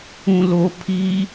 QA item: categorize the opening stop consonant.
aspirated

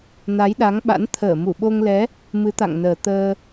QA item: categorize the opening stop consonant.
implosive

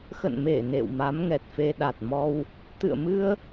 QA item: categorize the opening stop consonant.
plain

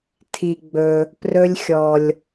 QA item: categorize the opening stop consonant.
aspirated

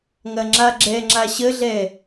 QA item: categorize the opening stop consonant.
click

